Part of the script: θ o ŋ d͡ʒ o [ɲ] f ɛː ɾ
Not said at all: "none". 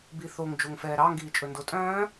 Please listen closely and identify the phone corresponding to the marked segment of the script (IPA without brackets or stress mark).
ŋ